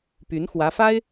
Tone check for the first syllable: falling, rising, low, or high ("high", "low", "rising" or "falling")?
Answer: rising